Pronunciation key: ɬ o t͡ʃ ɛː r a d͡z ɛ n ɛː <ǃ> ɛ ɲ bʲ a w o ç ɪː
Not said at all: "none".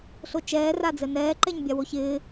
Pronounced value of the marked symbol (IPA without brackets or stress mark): ǃ